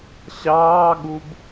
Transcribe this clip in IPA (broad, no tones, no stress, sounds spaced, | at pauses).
ɕ ɑː ɠ u b